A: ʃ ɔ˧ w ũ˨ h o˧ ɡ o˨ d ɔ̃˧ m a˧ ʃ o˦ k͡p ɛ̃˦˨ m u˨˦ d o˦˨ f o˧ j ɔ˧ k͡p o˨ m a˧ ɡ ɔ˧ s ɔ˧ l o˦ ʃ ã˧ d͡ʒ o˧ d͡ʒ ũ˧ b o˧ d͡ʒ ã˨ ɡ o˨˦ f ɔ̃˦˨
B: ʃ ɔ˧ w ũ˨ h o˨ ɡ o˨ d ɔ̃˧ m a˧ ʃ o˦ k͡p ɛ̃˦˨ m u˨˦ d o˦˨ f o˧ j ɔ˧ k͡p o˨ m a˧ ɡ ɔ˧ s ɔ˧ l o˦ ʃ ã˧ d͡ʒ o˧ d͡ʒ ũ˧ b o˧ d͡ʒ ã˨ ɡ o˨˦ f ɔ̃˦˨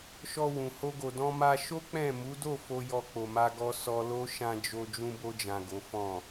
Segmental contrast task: A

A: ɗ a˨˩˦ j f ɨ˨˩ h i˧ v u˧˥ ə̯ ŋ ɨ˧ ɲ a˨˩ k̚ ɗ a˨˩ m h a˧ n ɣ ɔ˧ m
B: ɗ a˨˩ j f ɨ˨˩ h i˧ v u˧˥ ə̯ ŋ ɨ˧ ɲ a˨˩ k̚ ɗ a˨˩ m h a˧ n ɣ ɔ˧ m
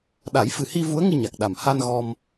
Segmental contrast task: A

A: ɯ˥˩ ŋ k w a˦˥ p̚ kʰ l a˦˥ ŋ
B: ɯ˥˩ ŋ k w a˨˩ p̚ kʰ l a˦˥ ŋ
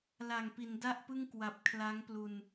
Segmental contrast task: B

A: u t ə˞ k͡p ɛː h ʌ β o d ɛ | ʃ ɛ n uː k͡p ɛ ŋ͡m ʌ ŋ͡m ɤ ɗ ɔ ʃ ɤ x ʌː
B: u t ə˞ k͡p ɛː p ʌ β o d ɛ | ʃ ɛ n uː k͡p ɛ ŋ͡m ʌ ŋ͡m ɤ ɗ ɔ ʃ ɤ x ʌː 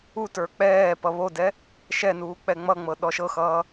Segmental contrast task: B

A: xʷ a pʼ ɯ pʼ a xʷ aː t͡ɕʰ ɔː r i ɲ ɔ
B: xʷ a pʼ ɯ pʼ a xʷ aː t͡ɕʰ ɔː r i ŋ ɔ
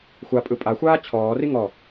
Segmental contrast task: B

